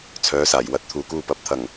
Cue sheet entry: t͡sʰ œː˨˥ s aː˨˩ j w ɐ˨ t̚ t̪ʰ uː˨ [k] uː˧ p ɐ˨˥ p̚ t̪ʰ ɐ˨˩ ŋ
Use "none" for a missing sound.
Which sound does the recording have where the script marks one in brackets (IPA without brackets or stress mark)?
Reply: k